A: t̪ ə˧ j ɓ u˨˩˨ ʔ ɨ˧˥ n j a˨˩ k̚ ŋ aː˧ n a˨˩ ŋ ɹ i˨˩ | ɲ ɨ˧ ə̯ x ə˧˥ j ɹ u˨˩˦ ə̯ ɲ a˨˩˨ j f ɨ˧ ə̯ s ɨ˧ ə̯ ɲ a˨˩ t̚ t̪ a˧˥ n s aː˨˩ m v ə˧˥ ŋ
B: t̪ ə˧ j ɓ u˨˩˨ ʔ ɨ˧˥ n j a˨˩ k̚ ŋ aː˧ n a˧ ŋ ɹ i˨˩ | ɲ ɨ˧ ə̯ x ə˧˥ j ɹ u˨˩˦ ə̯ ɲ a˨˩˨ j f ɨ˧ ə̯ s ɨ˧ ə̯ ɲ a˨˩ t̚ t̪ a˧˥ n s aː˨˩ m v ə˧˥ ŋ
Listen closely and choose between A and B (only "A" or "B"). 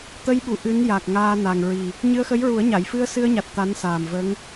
A